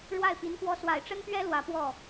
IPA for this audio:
ɻwa˥˩ɪ̯pi˧˥nkwɔ˥ swa˨˩ɪ̯ʈ͡ʂə˥npɥɛ˥ lwä˧˥pwɔ˥˩

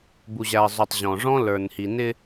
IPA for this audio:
bu˨ʑæ˨ə̯zˤu˨tˤ ʑɔ̃˨ʐɔ̃˦ lə˞˨nhi˨nɪ˦

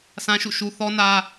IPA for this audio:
sã˦ʃṵ˦˨ʃu˦ θɔ˦nä˦

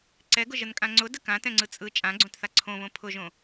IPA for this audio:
ǀɛɡʊʒənkʼã ŋ͡ǀʊdə kãtɛ̃ŋ͡ǀɯ t͡sʼɯ t͡ʃʼãɡ͡ǀõtθa ǀʰõβõ pʰʊʒõ

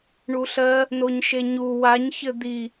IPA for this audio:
ɳuɬɜ | noɲʃeɲu waɲ çɘd̪i

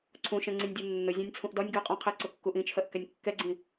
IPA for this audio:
ǀʰũʃɛ̃ ŋ͡ǀĩnʲdʲunːʊ zʲɔ̃nʲt͡sʰũʔdɒnʲ ɡɜqʼɔ̃qʰɛǀʊ kːuʔĩt͡ʃʰɜʔ kɛnʲkːɛɡ͡ǀĩ

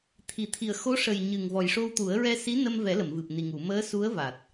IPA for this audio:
t̪ʰi˨˩˨ t̪ʰi˨˩ə̯ xo˧˥ʂə˨˩j ɲɨ˨˩ŋvɔ˨˩jʂo˧wt̪u˨˩˦ə̯ ɹɛ˧si˧˥nə˧mvɛ˨˩˦ lə˨˩˨mvɨ˨˩p̚ni˨˩ŋu˨˩˨ məː˧˥su˧˥ə̯ va˨˩t̚

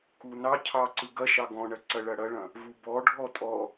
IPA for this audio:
kunɑcʰɑ ǀɯɡɐʃɑ ɡɔ̃ɳɐ ǀɐɭɐɽɐɭɐ̃ | vubɔɖʱɔ tʼɔ

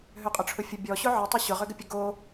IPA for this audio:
ɦøqʼʊʈ͡ʂʰʊfʲə bʲɔɕʊ ʕətˤʏ ɕʊʁʏɡəpʲə ɡo

